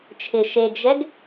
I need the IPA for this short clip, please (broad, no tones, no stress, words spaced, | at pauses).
t͡ʃʰɪ ʃeɡʒɛɡ